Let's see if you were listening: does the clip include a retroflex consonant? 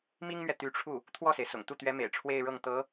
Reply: yes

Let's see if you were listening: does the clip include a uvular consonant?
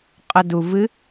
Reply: yes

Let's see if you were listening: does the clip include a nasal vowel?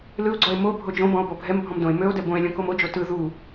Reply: yes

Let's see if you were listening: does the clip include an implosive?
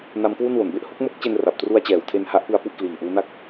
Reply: no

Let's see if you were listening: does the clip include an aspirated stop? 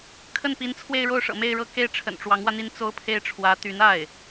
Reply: yes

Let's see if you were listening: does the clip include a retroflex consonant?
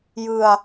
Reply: no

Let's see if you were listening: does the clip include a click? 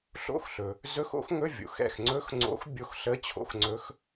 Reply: yes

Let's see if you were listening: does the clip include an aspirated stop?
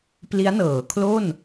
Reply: yes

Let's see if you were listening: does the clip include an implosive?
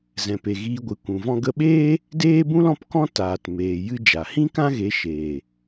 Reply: yes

